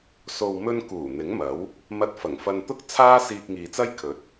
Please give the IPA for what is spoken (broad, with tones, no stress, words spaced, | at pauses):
so˨wmɵ˧n kuː˨˩ n̪ɪ˨˥ŋmɐ˨˥w | mɐ˧t̚ fɐ˨˩ŋfɐ˧nt̪ʊ˥k̚ t͡sʰaː˥siː˧k̚ ŋiː˨t͡sɐ˥j kʰɵ˨˥t̚